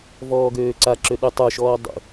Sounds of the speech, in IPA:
vɔːɡøːǀaǁø ɗʉtˤə˞ʃɔː dˤṵ

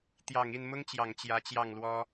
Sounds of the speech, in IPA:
t̪jɑ˨˩ŋi˥˩nmʊ˥ŋt͡ɕjɑ˨˩ŋ t͡ɕjä˧˥t͡ɕjɑ˥˩ŋlwɔ˥

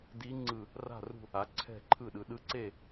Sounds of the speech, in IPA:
di˧˥ŋ͡ǀɯ˧˩ | ra̤˥˨rṳ˥˨ | a˩˧ǀʰɛ̤˧˩ǃʰɯ˧˩ɗɯ˩˧ ɗɯ˧˥ǀe˥˨

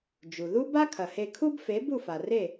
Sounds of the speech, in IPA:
d͡ʒu˩ ðu˥ ba˥kʰɐ˩he˧ kʰu˥bfe˩˥ bu˥˩fa˩re˥˩

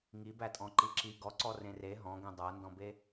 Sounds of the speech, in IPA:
ŋibætʼɔ̃ǃi ǁi ɡɔǀɔrẽ re ɦɔ̃ɡẽ dˤændɔ̃be

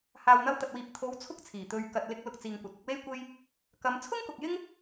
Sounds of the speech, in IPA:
haː˨wn̪ɐ˧wt̪ɐ˨t̚wiː˨p̚ t̪ʰo˨˧w t͡sʰʊ˥k̚t͡sʰiː˨˩ t̪ɵ˨ɥ kɐ˨t̚lɪ˧k̚ lʊ˧k̚t͡siː˨ŋkʷɐ˨t̚ ɪ˧k̚we˥jkʷe˥j | kɐ˨˧m t͡sʰʊ˥ŋkʊ˨k̚jɪ˥ŋ

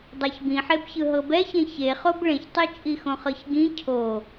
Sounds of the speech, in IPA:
dˤaçbĩħebçɯ ɦɤbɛçẽ çeχob ɭẽçtˤit͡ʃʼi xõχɤçɡĩ cʰo

